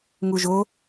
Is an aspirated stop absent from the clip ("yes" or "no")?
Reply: yes